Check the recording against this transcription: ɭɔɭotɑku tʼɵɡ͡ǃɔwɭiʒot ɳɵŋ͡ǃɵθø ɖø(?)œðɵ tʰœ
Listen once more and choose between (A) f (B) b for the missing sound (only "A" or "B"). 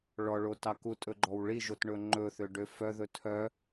A